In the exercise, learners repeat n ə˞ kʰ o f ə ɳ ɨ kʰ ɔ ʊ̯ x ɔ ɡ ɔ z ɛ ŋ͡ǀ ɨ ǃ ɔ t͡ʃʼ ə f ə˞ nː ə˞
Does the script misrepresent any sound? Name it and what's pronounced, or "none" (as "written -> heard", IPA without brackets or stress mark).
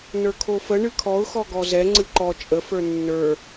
none